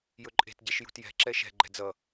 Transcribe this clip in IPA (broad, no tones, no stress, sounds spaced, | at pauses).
j ɵ ǃʼ e̤ t ɟ ɛ ʃ j ṳ t j ɛ̤ ǁ ɛ ʃ ɛ̤ ɡ͡ǃ ɛ̤ d͡z ʌ